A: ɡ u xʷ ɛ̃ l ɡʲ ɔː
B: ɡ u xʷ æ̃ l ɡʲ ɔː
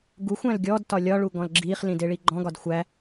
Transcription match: B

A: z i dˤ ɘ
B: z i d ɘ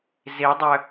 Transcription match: A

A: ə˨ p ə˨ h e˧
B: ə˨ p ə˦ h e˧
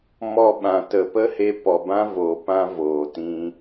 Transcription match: B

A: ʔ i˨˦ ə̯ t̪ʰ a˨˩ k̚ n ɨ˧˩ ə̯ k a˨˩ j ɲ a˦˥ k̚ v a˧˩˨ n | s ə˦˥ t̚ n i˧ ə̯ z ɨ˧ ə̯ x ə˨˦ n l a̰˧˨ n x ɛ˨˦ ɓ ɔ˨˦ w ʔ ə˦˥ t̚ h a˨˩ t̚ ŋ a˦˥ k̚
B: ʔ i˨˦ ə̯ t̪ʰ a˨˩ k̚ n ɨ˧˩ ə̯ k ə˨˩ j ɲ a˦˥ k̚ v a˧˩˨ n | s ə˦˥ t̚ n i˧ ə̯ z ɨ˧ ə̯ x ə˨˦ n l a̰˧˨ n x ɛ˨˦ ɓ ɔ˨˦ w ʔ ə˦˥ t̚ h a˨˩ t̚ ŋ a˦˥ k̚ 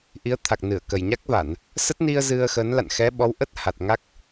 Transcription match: B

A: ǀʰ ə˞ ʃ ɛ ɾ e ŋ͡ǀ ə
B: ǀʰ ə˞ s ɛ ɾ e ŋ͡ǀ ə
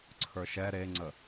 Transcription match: A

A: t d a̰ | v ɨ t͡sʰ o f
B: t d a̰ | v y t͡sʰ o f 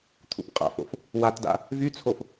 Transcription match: B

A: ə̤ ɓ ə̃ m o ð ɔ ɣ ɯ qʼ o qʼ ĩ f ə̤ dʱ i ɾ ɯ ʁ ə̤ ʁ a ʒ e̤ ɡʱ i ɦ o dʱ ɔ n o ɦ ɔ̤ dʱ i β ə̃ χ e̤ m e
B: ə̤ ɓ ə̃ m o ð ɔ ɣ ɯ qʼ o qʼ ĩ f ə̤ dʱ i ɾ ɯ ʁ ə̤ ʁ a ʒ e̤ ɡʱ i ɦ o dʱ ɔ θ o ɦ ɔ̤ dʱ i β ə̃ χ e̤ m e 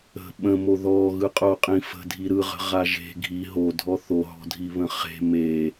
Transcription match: B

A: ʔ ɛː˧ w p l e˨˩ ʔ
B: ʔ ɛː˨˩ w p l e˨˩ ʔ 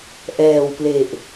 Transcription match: B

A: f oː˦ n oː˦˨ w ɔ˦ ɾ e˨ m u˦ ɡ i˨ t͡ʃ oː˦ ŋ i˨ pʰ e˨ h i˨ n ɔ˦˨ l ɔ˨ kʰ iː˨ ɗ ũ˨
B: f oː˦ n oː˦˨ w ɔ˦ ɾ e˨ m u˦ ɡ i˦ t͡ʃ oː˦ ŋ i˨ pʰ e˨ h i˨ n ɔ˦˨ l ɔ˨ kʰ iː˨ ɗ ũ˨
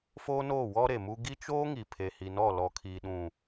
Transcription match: B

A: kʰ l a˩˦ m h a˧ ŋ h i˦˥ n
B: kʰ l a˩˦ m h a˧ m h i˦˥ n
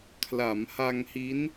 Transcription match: A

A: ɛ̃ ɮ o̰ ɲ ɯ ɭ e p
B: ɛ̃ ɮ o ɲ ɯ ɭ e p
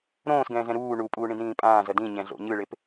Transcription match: A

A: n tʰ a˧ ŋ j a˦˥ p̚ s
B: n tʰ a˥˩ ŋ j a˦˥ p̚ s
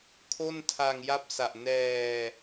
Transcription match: A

